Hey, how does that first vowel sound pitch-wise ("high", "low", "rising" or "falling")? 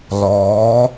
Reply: rising